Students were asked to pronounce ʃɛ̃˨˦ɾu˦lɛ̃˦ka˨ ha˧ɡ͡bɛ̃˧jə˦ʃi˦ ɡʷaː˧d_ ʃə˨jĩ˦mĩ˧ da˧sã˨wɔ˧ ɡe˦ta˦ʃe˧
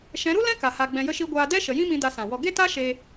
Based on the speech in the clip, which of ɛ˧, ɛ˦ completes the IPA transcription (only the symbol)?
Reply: ɛ˦